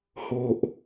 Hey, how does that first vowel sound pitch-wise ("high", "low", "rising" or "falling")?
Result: low